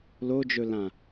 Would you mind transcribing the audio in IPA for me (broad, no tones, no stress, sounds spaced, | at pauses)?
l o d͡ʒ ɵ l ã